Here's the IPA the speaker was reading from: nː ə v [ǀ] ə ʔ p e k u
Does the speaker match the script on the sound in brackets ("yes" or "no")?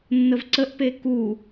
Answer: yes